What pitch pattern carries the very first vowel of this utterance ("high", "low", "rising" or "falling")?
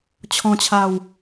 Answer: falling